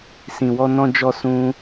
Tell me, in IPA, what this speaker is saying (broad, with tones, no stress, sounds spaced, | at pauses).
s ĩ˨ w ɔ˧ n ɔ̃˧ d͡ʒ ɔ˧ s ũ˦